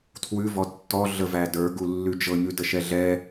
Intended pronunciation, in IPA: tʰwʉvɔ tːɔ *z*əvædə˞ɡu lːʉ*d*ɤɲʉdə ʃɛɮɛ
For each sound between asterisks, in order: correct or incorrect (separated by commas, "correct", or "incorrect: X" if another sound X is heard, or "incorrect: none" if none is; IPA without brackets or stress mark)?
incorrect: ɮ, incorrect: d͡ʒ